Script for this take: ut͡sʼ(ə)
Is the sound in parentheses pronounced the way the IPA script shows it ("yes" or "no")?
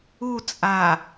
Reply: no